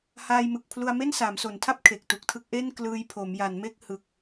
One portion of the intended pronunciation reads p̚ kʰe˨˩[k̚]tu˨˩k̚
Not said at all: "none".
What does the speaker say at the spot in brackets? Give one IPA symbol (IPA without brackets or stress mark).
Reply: k̚